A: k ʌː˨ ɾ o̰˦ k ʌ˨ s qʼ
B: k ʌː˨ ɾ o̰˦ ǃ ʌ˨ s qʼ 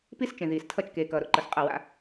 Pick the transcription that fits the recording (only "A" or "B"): B